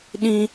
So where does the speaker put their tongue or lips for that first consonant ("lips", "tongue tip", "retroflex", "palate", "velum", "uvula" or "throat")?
tongue tip